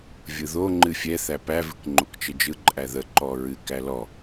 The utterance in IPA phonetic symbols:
vʲɯðo ŋ͡ǃɨfʲɛ θæpæ vɨkŋ͡ǃokt͡ʃəd͡ʒɯ ǃʼæðə ǃɔɹɨ kælɔ

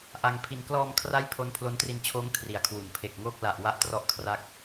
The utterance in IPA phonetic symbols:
ʔa˧ŋpʰi˧n klɔː˧mkʰra˦˥j pʰo˦˥npʰlo˦˥ntri˧nt͡ɕʰoː˦˥ŋ kʰri˨˩a̯kʰwu˩˦n pʰe˨˩k̚ ŋoː˥˩k̚ la˨˩ʔ wa˦˥ʔtrɔ˦˥ʔ kʰra˦˥k̚

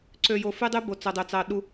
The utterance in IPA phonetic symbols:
ǀø˨jo˨fy˦dˤy˦ bo˨t͡so˨dˤø˨t͡sɑ˨ ɗu˨

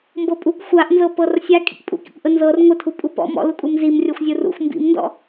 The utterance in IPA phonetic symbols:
mbɤpʼuk xʷaʔ nzɤpɤrsʲa kʼḭkpʼṵkḭkʷʔə nzɤr ŋʷətʰu pʼupɔ̰ mɔ̰lukʼum zim rʲɤxʷzʲurṵxʷ mbḭmndɔ̰

